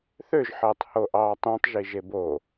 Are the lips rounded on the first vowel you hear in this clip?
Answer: yes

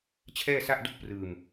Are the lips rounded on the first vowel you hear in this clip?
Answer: no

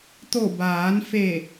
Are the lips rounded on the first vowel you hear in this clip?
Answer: yes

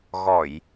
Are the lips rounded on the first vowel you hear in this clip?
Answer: yes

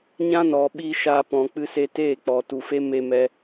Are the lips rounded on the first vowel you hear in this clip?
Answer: no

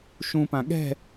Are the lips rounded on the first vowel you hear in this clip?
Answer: yes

